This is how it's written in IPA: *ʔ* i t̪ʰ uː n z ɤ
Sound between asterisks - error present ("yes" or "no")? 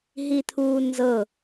yes